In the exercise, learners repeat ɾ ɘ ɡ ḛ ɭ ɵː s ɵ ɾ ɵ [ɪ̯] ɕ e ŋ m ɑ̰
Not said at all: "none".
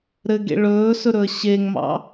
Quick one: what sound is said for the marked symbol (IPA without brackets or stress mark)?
ə̯